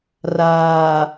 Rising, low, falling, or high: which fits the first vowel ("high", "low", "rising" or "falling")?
low